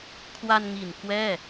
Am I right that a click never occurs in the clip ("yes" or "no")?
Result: yes